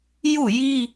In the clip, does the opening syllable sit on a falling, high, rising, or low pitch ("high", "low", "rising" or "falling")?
falling